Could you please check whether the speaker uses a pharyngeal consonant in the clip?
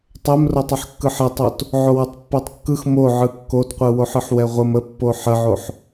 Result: yes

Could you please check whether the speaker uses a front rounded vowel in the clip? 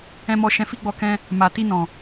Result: no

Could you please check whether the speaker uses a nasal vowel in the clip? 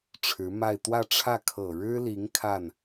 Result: no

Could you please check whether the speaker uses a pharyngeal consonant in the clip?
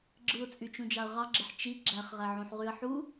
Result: yes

